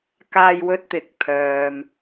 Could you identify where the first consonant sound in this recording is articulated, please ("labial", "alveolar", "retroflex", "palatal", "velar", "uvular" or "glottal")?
velar